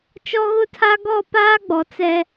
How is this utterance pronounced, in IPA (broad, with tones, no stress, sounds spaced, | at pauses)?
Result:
t͡ʃ ɔ˦ ɣ ʊ˦ tʰ a˦ ɡ ɔ˦˨ p aː˦ ɡ͡b ɔ˨ t͡s ɛ˦